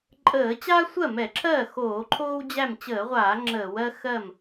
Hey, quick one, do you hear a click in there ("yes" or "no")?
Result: yes